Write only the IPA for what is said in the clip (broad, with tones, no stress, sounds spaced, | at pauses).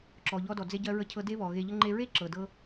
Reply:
ǁ ɔ˩ ʎ ɔ˧ d ɔ˩ d͡z e˧ ɟ ɜ˧ ɹ ə˧ cʰ ɤ˧ d e˥ β ɔ˩ ɣ e˧ ʎ ə˥ ŋ͡ǃ e˧ ɹ e˥ ǁ ɤ˩ d ɤ˥